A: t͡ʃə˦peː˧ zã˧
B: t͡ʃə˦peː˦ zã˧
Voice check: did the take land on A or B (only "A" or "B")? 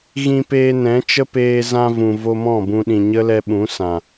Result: A